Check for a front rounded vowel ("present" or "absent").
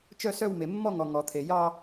present